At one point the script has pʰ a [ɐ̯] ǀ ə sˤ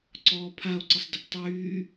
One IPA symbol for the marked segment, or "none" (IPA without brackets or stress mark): o̯